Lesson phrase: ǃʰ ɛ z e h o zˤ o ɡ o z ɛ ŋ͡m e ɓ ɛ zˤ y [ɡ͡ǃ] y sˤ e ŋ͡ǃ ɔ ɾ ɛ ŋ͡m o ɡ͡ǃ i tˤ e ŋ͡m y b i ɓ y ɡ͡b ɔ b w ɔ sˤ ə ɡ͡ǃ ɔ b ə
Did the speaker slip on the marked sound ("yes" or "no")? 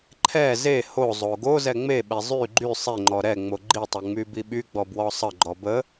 no